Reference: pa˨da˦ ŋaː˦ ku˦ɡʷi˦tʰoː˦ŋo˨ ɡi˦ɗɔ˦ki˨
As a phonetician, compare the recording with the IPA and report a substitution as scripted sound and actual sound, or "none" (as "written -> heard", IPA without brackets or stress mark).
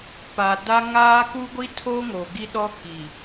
none